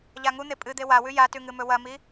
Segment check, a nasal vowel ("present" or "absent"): absent